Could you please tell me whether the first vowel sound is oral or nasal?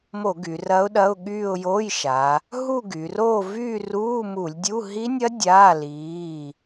oral